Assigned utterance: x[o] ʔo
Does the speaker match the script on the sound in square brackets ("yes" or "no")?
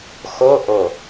yes